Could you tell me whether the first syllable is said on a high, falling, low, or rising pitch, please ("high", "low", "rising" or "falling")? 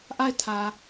falling